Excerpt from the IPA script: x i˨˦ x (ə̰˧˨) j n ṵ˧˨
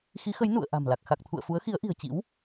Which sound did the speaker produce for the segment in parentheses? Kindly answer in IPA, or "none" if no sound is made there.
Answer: ə˨˦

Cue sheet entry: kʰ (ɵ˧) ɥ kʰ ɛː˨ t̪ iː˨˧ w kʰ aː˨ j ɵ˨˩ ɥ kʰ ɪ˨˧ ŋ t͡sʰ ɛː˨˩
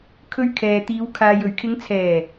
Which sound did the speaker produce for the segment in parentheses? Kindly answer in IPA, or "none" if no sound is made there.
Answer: ɵ˧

